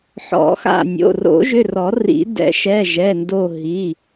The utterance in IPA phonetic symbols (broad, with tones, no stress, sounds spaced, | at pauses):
ħ ɔ̰˨˩˦ x a̰˧˩ nʲ o̰˩˧˩ r o̰˨˩˦ ʒ ʏ˩˧˩ r ɔ˨˩˦ r ḭ˨˩˦ d ɛ̰˨˩˦ ʃ ɛ˩˧˩ ʒ ɛ˩˧˩ n d o˧˩ ɦ i˩˧˩